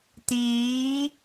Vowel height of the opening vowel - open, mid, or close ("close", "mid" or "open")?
close